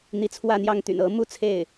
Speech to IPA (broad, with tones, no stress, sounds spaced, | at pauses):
n̪ i˧˥ t͡sʰ w ä˥˧ n̪ j ɑ˥˩ ŋ t̪ y̰˨˩ n ɤ˧˥ m u˥ t͡sʰ e˥˩ ɪ̯